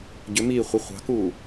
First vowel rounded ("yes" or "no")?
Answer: yes